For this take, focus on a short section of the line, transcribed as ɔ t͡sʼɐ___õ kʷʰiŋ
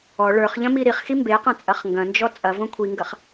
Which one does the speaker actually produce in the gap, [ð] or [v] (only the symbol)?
v